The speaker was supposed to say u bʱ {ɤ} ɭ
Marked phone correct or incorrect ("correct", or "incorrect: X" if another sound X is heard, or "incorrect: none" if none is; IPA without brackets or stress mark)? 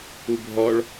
incorrect: ɔ